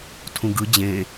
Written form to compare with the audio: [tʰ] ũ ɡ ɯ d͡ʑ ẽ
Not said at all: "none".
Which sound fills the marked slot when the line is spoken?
tʰ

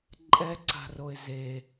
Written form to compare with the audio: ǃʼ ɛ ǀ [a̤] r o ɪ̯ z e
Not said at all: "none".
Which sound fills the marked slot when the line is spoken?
a̤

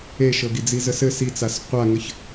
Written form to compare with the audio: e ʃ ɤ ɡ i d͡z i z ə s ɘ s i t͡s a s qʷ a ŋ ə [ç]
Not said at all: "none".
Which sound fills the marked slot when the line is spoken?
ç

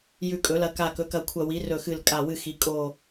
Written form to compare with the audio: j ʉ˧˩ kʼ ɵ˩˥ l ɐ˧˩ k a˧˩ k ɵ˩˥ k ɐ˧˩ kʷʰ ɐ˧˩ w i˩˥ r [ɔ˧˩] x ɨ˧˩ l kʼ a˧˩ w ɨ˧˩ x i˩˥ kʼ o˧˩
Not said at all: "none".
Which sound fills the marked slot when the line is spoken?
ɵ˧˩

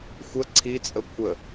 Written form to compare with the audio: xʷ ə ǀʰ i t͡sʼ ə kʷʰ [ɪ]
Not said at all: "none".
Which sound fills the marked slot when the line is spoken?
ə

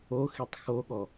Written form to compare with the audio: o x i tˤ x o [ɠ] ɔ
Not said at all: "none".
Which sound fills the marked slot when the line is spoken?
ɠ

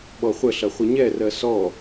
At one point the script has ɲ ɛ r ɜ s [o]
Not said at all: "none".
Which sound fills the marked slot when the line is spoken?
ɔ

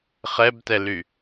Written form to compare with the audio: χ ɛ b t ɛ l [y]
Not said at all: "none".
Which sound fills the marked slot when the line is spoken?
y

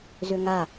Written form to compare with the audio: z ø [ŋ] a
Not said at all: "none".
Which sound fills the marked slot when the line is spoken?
ŋ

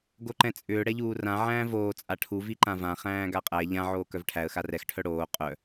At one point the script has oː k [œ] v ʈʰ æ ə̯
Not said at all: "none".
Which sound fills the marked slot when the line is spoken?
œ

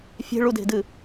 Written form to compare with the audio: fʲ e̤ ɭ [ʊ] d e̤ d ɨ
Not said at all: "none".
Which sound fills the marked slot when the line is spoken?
u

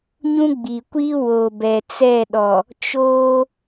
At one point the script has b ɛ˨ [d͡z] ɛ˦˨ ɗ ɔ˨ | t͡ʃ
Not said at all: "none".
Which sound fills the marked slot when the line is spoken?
t͡s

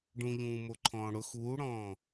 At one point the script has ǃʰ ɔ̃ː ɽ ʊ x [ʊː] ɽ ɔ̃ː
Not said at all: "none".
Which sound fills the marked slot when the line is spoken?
uː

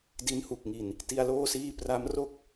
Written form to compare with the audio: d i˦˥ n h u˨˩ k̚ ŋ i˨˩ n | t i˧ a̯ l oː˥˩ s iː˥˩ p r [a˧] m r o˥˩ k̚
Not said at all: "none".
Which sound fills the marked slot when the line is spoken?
a˦˥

